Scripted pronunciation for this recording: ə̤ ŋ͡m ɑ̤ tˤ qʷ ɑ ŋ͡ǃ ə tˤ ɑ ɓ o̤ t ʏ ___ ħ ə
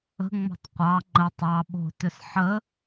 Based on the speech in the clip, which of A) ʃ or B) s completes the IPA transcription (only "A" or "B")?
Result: B